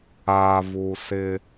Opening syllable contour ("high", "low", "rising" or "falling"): low